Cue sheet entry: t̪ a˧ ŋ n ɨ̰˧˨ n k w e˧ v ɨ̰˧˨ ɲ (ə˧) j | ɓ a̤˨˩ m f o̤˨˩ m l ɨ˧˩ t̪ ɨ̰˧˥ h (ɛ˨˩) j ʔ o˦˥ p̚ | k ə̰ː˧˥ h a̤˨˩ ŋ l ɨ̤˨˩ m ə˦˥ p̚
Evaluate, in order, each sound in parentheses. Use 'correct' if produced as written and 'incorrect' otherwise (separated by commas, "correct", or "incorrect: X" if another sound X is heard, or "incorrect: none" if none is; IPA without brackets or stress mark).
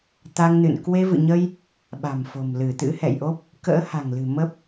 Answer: correct, incorrect: ɛ̰˧˨